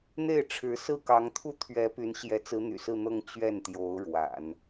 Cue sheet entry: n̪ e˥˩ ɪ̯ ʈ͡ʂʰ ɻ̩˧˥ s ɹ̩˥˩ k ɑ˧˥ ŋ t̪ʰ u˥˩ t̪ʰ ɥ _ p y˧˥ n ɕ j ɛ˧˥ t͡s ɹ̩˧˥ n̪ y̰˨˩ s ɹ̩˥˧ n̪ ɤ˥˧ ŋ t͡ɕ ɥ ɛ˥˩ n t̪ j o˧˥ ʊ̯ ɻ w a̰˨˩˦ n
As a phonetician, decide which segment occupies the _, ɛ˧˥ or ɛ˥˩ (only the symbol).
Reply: ɛ˧˥